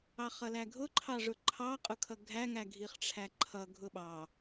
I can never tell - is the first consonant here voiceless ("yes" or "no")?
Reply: yes